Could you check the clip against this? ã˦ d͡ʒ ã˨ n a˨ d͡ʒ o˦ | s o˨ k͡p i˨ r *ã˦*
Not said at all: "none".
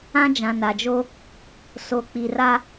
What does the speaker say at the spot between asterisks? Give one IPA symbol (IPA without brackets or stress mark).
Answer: a˦